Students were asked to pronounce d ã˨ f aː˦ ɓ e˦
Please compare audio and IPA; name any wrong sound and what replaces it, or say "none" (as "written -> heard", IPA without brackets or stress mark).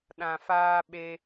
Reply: d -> ɗ